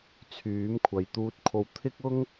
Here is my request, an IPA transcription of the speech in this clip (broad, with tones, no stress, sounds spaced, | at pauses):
t͡sʰ yː˨˥ m kʷʰ ɐ˨˧ j t̪ uː˧ t̚ kʰ o˧ w t̪ʰ ɪ˥ k̚ ʊ˥ ŋ